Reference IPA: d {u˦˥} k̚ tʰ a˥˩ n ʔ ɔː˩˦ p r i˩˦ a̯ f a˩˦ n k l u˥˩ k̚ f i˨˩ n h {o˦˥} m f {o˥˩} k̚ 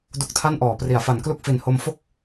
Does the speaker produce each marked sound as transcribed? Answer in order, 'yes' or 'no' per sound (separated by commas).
yes, no, yes